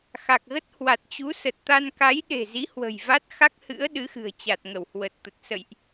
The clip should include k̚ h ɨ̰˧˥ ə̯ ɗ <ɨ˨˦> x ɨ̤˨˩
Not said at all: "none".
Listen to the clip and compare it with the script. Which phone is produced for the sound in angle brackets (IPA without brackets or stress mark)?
ɨ˨˦